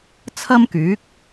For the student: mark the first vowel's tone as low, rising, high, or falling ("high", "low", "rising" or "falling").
high